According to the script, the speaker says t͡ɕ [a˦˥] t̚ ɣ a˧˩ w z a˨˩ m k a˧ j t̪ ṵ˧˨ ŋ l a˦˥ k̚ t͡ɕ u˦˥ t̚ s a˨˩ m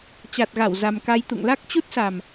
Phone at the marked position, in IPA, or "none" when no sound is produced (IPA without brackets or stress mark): a˨˩